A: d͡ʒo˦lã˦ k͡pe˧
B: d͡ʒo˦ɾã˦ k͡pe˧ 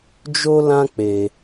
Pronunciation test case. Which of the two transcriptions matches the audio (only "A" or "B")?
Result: A